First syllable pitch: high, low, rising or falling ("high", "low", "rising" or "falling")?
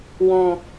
low